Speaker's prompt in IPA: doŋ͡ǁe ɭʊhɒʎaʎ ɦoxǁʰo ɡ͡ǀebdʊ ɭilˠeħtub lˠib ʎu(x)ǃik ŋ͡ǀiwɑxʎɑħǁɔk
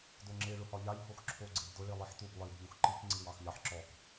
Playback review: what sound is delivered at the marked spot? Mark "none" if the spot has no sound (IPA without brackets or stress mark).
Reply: x